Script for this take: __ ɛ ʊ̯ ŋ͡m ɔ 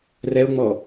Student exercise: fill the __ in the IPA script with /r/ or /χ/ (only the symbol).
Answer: r